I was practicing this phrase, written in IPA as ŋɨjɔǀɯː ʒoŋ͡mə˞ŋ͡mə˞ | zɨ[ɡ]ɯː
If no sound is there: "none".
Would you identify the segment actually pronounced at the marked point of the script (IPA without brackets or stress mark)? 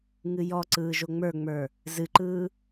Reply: ǃ